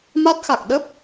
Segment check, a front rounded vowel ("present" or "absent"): absent